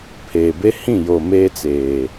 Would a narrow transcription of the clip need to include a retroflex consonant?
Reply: no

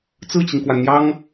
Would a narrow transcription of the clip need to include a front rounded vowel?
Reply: no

